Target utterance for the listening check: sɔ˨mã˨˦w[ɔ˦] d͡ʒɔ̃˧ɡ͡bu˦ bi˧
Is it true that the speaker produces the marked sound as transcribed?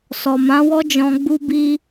yes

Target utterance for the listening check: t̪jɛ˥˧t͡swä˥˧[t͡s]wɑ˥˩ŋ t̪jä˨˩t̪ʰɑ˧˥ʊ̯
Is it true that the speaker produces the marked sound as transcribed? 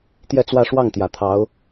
no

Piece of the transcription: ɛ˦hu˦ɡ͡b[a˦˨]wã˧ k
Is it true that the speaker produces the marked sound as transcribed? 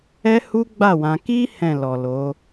yes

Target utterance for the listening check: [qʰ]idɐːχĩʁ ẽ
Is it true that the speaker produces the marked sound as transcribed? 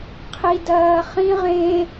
yes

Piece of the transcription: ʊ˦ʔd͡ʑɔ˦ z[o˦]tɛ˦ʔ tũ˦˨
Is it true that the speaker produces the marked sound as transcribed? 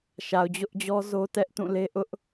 yes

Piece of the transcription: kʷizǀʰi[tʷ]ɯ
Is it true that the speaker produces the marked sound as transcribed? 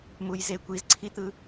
no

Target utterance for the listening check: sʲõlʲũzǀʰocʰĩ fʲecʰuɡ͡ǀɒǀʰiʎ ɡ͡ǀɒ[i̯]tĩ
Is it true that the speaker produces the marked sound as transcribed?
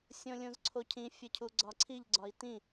yes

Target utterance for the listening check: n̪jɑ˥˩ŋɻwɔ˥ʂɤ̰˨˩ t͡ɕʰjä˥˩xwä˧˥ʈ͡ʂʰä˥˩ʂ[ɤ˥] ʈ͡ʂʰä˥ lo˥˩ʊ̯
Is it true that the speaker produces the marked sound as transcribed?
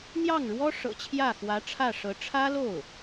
no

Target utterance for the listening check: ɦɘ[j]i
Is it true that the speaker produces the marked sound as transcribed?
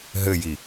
yes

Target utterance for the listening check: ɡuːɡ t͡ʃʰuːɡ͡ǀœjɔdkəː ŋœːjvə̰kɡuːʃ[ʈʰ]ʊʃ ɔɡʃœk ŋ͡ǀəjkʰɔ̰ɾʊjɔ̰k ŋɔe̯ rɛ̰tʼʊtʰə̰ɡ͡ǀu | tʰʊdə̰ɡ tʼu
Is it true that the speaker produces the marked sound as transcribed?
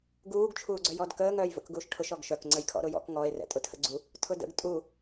yes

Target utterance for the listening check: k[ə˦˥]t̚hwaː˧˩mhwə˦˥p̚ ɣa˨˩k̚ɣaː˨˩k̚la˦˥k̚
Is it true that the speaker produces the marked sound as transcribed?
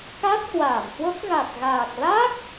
no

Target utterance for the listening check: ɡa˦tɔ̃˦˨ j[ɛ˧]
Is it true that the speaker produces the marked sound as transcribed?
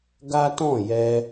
yes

